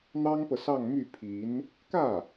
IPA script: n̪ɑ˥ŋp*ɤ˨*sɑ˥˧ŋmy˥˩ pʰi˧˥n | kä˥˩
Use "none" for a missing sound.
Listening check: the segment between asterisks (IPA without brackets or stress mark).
ɤ˨